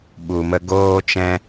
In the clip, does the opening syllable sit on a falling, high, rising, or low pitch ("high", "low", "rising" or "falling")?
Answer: low